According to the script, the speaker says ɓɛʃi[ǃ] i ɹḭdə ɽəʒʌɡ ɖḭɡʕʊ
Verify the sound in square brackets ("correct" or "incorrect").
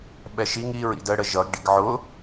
incorrect